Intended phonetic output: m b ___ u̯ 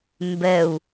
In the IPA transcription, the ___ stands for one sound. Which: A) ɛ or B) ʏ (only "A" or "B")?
A